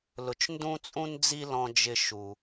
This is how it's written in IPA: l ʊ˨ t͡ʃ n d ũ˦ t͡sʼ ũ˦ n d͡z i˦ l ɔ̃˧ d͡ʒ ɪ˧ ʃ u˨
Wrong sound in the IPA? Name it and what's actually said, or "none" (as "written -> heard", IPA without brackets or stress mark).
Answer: none